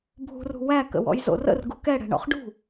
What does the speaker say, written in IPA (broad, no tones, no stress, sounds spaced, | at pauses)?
bʱ ṳ r ṳ w æ k ə̰ w ɔ̰ j z o̰ r ə̰ r ɡ u k ɛ ɽ ɛ̤ ɳ ɔ̰ χ ɖ ṳ